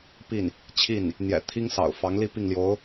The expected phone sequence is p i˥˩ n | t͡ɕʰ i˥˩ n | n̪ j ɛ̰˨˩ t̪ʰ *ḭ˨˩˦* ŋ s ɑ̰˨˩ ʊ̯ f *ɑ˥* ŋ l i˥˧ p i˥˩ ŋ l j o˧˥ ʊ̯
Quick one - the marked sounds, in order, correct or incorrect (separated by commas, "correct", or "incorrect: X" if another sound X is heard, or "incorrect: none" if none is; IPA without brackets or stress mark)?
incorrect: i˥, incorrect: ɑ˧˥